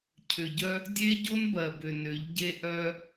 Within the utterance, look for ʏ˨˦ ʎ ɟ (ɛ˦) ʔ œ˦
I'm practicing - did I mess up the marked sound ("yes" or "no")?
yes